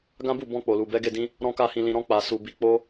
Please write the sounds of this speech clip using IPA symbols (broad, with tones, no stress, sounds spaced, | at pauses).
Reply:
ɡ ã˦ b u˦˨ b ɔ̃˧ k͡p o˨ l u˨ b ɛ˨˦ ɡ e˦˨ d ĩ˧ | ɾ ɔ̃˦ k a˧ h ĩ˨ l ĩ˨ ɾ ɔ̃˧ k͡p a˨ s u˨ b i˨ k͡p o˧